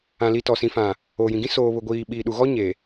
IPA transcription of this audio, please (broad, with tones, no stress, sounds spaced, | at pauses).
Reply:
ã˨ l i˨ t ɔ˨ s ĩ˨ f ã˨ | oː˨ j ĩ˨ ɡ ĩ˦ s oː˨ β ʊ˨ ɡʷ iː˨ ɓ iː˨ ɗ u˨ ɣ ɔ˦ ɲ e˨